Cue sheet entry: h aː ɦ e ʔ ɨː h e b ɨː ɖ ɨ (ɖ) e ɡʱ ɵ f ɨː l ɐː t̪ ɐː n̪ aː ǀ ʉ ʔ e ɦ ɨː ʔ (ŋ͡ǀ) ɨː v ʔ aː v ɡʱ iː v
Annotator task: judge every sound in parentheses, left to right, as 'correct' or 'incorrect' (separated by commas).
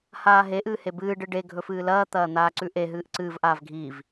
correct, incorrect